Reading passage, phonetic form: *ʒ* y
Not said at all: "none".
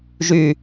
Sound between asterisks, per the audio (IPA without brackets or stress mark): ʒ